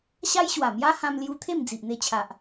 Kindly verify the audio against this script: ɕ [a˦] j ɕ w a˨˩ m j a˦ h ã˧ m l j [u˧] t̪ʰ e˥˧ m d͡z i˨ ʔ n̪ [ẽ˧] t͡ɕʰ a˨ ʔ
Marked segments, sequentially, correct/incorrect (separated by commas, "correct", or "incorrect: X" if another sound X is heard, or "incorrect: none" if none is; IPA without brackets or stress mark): correct, correct, incorrect: e˧